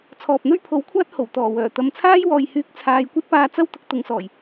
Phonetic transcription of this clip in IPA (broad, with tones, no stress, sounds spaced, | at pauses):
t͡sʰ ɔː˨ p̚ n̪ ɵ˥ ɥ pʰ o˨˥ w kʷʰ aː˥ t̚ h o˨˩ w t̪ ɔː˨˩ w œː˨˩ t̪ ɐ˨ m t͡sʰ aː˥ j w ɔː˨ j h yː˧ k̚ t͡sʰ aː˨˧ j kʷ ɐ˥ t̚ p aː˧ t͡s ɐ˥ w t̪ ʊ˨˥ k̚ t̪ ʊ˨˧ ŋ s ɔː˨˩ j